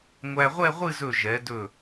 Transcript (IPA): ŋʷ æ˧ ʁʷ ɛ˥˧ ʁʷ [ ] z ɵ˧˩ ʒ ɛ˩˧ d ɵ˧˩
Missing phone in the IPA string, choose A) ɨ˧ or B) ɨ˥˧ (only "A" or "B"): B